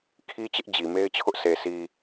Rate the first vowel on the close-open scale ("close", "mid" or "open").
close